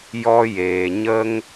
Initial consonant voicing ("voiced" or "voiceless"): voiced